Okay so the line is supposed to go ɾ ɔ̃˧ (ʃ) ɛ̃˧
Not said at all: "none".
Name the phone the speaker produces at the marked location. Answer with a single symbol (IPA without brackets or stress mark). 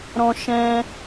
ʃ